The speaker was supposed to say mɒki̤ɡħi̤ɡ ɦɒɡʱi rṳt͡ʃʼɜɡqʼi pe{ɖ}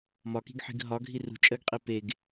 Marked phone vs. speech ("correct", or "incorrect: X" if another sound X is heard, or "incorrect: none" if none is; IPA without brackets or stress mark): incorrect: ɡ